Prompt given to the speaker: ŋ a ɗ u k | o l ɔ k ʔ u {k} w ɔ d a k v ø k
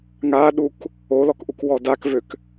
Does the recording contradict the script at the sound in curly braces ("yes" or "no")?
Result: no